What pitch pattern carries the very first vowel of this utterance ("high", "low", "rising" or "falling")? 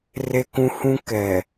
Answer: high